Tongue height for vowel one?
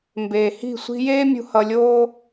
mid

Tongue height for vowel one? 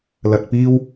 low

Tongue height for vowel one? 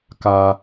low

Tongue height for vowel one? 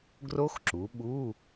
mid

